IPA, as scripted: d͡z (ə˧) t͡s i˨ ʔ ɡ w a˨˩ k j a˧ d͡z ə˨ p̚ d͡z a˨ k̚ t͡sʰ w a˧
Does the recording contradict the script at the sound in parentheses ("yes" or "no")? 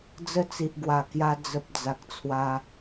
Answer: yes